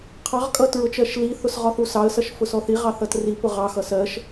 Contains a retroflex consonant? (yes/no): no